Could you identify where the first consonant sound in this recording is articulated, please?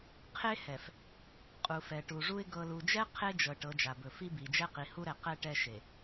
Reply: uvular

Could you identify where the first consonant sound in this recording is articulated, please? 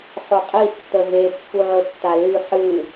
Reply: uvular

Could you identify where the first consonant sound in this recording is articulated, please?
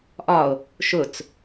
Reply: glottal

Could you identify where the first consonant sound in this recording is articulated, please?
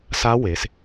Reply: alveolar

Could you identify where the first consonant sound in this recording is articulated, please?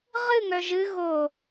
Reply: uvular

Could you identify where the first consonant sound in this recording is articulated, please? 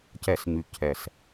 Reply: palatal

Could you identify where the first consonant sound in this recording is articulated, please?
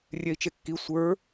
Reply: alveolar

